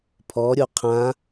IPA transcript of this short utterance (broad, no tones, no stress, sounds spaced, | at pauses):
pʰ ɔ ɾʲ o qʰ ã